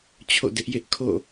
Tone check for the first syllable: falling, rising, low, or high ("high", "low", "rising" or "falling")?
falling